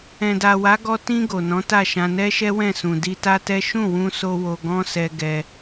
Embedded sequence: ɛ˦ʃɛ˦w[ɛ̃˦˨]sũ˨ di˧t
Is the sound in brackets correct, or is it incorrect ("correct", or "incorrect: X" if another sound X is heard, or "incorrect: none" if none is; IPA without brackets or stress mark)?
correct